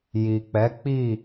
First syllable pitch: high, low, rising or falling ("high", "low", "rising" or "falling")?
low